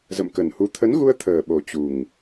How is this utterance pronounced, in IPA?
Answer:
zə̰˧˨mkə˨˩nhu˨˦ t̪ʰə˨˦nɣu˧ə̯ t̪ʰəː˨˩ɓo˨˩ t͡ɕu˨˩ŋ

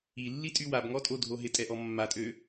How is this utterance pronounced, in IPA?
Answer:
ilːitʼy wabŋɔtʼodʱo ɦɪtʼɛʔɔ mːatʼø

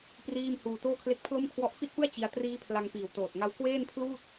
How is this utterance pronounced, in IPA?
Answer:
priː˥˩m huː˧toː˥˩kʰle˥˩k̚ pʰlo˥˩mkʰwɔ˦˥ʔ fi˥˩t̚pɯ˥˩a̯ t͡ɕi˦˥a̯ triː˦˥ pʰla˧ŋpiː˨˩w toː˨˩t̚ ŋa˦˥w kweː˥˩npʰluː˥˩t̚

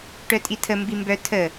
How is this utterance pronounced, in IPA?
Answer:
ʈœtʼitʰə mbimbœ tʰə

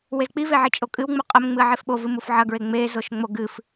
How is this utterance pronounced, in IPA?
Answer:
wezk͡piveʕi t͡ʃʼokʼɨwŋ͡mu qʼɐm ŋ͡mɨɐ̯ʕefɓovɨ mufʕɐɡɹe ŋ͡mezoʃ ŋ͡moɡɨf

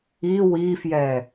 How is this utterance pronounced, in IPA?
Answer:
i wifjɛ

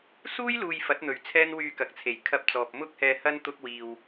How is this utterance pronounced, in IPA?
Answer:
suː˥jluː˨j fɐ˨˥t̚n̪ɵ˨˩ɥ t͡sʰɛː˥nwyː˧kɐ˨k̚t͡sʰe˨˩j kʰɐ˧p̚t͡sɔː˨p̚ mʊ˥k̚hɛː˧hɐ˥n t̪ʊ˥k̚wiː˧w

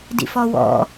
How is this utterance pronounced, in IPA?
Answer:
dḭfɔwɔ̰

